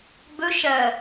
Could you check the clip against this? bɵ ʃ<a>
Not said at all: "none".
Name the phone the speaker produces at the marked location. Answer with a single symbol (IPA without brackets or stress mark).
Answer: ɐ